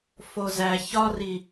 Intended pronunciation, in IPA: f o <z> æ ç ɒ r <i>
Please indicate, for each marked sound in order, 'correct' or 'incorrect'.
correct, correct

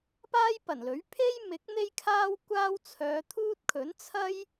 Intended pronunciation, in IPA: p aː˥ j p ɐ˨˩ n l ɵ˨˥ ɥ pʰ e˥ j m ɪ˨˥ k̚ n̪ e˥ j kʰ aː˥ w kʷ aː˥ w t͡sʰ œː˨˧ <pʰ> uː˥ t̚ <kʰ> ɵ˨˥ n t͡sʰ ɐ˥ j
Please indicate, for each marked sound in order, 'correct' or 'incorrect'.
incorrect: t̪ʰ, correct

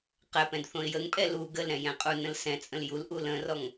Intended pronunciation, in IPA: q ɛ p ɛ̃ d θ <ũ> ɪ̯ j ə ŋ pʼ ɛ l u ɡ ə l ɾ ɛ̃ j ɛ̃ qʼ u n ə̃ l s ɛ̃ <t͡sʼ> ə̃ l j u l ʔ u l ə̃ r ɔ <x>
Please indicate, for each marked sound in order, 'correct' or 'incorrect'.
incorrect: õ, correct, incorrect: ŋ

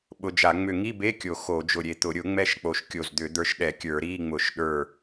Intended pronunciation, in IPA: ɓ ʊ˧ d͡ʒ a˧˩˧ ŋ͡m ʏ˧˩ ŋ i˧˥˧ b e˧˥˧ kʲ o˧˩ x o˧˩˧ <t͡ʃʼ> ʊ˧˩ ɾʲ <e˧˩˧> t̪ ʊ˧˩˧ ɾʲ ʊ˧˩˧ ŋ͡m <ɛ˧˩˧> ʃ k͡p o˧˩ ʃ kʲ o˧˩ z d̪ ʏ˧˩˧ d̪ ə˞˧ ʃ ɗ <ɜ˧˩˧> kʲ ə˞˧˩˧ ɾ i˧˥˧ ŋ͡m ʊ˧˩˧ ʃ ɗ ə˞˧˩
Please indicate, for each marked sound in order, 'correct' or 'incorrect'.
incorrect: d͡ʒ, incorrect: e˧˩, incorrect: ɛ˧, incorrect: ɛ˧˩˧

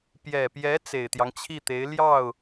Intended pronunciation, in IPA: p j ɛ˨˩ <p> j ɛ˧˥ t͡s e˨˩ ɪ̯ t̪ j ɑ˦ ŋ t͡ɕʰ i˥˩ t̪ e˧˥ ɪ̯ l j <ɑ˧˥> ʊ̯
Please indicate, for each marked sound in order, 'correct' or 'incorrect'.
correct, incorrect: ɑ˥˩

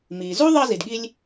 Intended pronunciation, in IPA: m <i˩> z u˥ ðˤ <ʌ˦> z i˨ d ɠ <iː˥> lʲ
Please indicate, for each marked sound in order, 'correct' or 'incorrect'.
incorrect: i˨, correct, incorrect: i˥

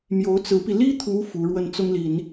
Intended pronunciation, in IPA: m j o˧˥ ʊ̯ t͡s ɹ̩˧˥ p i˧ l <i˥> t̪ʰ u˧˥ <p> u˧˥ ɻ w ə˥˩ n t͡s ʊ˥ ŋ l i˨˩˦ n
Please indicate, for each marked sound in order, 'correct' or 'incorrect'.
correct, incorrect: f

